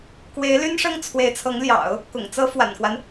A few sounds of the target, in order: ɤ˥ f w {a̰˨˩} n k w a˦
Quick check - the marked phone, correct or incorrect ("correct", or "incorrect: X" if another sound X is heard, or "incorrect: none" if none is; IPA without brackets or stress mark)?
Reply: correct